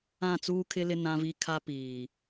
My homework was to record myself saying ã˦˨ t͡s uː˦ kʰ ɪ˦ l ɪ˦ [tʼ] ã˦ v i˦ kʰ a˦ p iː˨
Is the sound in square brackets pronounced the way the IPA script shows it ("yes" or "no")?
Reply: no